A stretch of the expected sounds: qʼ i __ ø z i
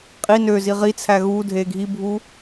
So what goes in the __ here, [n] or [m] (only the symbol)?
n